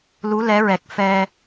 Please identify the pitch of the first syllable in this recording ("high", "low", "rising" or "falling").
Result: rising